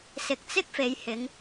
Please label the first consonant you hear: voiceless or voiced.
voiceless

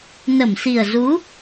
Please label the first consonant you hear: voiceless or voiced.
voiced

